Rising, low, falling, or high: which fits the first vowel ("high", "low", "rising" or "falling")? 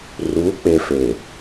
rising